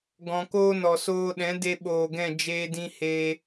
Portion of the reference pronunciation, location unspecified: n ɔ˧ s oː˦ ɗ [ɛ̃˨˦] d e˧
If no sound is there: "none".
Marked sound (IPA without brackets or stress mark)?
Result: ɛ̃˨˦